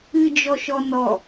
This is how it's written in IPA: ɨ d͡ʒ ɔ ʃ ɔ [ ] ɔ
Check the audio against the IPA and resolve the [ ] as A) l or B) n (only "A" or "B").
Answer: B